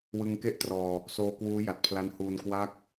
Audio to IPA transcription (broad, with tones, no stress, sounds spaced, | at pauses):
w ɯ˧ ŋ k e˥˩ ʔ t r ɔː˧ | s oː˧ k w uː˦˥ j a˨˩ t̚ pʰ l a˦˥ n h uː˧ n k w a˥˩ k̚